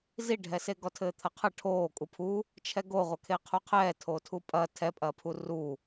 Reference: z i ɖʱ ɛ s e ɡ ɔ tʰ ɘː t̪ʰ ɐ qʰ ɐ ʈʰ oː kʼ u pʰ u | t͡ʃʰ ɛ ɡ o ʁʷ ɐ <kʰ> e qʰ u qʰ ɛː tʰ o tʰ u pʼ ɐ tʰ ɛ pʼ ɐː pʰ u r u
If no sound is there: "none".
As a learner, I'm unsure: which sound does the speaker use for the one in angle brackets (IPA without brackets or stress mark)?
kʰ